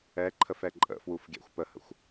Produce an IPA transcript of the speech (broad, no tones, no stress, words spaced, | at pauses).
ɛǃʰəfɛ ǃʼə̰fwufɡʲæ̰xʷ pəhə̰xʷ